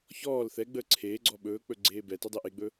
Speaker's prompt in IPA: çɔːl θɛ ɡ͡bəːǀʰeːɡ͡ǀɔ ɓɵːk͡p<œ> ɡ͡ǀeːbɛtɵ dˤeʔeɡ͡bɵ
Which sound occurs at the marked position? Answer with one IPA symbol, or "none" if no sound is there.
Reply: ɵ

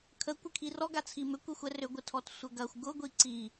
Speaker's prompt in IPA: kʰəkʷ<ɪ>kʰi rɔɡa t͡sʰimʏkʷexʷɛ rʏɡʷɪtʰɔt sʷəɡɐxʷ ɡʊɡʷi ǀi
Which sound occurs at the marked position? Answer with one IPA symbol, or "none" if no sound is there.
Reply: ɪ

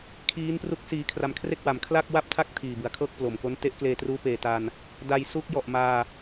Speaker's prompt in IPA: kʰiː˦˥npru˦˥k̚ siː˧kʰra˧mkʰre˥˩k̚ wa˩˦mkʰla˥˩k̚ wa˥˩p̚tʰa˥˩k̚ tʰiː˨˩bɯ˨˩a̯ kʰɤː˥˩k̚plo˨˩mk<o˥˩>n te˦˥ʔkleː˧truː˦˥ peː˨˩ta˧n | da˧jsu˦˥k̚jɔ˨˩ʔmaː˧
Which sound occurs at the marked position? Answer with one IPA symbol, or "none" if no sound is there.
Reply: o˦˥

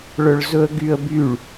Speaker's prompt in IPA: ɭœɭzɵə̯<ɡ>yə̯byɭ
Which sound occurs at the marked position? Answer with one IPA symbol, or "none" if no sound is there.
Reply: ɡ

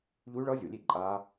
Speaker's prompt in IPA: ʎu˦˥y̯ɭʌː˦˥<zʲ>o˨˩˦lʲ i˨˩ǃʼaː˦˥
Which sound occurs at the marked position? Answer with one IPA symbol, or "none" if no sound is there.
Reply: zʲ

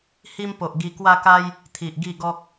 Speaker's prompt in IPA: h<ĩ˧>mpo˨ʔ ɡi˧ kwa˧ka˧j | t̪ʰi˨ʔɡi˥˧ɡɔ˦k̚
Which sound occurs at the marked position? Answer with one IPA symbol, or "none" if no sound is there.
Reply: i˧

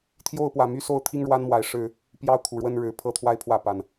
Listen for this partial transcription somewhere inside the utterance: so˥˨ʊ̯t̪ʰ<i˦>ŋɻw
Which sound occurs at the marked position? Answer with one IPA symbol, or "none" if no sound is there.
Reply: i˦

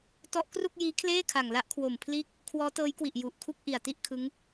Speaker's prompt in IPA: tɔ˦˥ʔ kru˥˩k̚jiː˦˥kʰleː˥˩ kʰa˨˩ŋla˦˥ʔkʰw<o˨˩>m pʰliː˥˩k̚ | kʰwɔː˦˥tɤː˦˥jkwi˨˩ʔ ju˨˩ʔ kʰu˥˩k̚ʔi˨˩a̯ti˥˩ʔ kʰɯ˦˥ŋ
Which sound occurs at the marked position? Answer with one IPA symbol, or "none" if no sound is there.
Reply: o˨˩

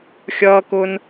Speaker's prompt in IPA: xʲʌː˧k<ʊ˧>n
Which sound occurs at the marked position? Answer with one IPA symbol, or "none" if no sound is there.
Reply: ʊ˧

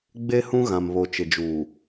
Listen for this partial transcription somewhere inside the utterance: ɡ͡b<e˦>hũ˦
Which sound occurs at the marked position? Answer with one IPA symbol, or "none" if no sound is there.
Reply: e˦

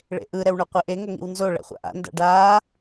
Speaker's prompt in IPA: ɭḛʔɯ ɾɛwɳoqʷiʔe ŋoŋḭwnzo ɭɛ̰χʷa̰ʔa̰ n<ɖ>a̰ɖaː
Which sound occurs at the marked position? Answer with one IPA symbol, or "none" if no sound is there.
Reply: d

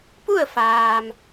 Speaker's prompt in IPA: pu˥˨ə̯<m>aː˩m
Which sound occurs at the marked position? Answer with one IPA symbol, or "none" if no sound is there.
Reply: f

